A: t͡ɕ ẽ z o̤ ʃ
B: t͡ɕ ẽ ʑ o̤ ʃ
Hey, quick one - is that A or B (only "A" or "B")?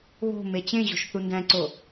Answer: B